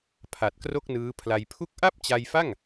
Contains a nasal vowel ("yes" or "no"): no